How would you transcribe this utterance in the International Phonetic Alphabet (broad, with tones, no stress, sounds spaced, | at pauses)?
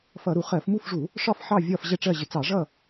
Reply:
f ʌ˧˩˧ ɾ u˧˩˧ χ ɜ˧˩˧ f m u˥˨ f ʐ u˧˩˧ | ʂ ɒ˥˨ f ħ ɑ˥˨ vʲ ɒ˥˨ f ʑ ɛ˥˨ ʈ͡ʂ ɜ˥˨ ʑ ɪ˧˩˧ t͡s ɑ˧˩˧ ʐ ʌ˥˨